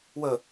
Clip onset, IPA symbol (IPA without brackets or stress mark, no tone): w